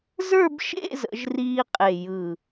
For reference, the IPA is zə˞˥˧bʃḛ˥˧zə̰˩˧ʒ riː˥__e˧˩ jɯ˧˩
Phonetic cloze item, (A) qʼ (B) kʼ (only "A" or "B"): A